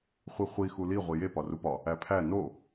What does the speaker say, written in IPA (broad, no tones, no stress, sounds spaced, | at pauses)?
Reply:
χʷ i χʷ i x u l i ʁʷ i j e p ɒ r u p ɒ | æ pʰ æ n o